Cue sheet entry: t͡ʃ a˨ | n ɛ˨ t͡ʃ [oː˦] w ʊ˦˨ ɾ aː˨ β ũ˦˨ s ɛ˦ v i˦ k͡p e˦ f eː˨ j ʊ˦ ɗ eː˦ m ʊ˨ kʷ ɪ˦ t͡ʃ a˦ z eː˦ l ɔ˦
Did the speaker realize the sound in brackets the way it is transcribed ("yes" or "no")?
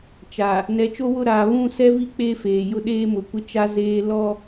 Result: no